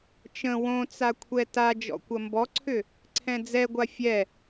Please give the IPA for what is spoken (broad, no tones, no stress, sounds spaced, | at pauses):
t͡ʃ ə̃ w õ t͡s a kʷʰ ɛ t a d͡ʒ ɔ̰ kʷ ɐ m b ɔ ǀʰ ʏ | ǀʰ ɛ̃ d͡z ɛ ɡʷ a fʲ ɛ